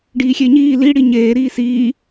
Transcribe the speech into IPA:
ɖiːxʲeɲiː li ɽiɲeːɾiː siː

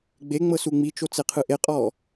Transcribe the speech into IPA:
ɡ͡beŋ͡mɤsu ŋ͡mit͡ʃot͡seqʰɯ ʔeqʼɔ

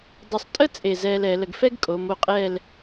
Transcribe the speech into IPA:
dˤo˧˩sˤtʼə˥˧ t͡sʼe˧˩zɛː˧lɛ˩˧lə˧ɡ fɛ˥ɡkʼo˩˧m o˧qʼɛː˥˧l

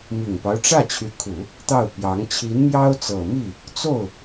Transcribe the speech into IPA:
mi˨˩ŋpɑ˦ʊ̯ʈ͡ʂä˥˩ t͡ɕʰy˧˥kʰu˨˩˦ | t̪ɑ˥˩ʊ̯pjɑ˧˥ŋ t͡ɕʰi˧˥nmjɑ˥ʊ̯ t͡sɤ˨˩mi˥˩ | t͡so˥˩ʊ̯

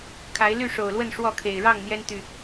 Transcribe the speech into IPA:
kʰa˨˦ɪ̯ ly˥˨ʂo˨˩ʊ̯lwə˥˨n ʂwɔ˥˨kʰe˨˩ɪ̯ ɻɑ˥˨ŋn̪jɛ˦n t̪y˨˩

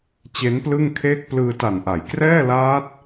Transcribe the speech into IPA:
t͡ɕe˦˥nplɯ˥˩ŋkʰeː˥˩k̚ plɯː˧ta˨˩nʔa˩˦j krɛː˥˩laː˦˥t̚

